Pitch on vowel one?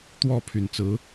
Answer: falling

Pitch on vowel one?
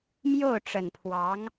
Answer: falling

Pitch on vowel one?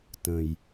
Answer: low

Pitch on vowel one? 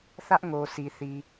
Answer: high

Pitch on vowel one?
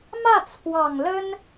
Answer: falling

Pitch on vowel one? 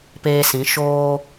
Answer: low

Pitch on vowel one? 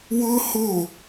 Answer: high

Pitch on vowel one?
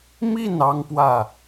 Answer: falling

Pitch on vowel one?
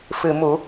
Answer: low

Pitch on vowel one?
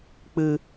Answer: low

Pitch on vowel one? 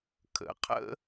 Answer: rising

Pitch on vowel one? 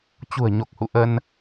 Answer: low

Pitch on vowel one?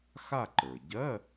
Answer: falling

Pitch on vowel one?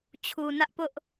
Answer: low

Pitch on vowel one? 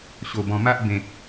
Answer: low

